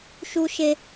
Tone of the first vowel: high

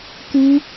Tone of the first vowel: high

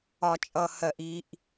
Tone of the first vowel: high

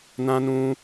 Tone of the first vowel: high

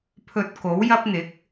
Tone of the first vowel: low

